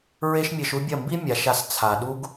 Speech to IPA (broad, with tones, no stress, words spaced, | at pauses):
ɹe˦ʃmʲe˧ʃu˦bʲɐ˦˨ mbi˦ mʲa˨˦ʃa˧s t͡sʰa˨ɗu˦ɡ